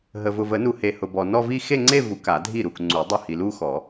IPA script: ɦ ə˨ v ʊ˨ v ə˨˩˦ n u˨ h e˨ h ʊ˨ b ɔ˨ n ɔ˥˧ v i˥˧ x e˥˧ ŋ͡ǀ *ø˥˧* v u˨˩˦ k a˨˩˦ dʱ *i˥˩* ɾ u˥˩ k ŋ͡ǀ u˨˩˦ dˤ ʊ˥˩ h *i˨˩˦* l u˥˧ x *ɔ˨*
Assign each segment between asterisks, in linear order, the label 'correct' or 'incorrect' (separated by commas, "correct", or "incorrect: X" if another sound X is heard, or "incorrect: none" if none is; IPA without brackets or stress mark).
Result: incorrect: e˥˧, correct, incorrect: i˨, incorrect: ɔ˨˩˦